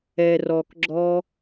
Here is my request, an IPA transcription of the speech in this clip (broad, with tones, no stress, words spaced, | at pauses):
ɛ˨rɔ˨kɡ͡ǁɔ˧